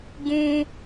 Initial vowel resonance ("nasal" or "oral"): nasal